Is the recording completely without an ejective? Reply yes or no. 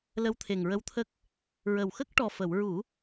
yes